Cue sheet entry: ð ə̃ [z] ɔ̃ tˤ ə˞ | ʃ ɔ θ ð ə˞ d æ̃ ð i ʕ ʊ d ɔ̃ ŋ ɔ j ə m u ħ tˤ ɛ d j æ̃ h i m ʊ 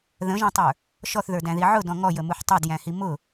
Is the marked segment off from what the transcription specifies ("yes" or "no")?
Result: yes